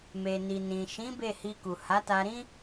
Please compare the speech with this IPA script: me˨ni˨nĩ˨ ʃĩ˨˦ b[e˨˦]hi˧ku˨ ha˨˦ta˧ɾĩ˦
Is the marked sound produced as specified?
no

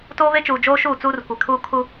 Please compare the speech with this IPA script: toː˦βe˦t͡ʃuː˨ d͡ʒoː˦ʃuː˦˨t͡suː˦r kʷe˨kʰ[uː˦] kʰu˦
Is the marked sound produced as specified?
yes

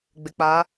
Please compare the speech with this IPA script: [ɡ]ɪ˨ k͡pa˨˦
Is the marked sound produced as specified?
no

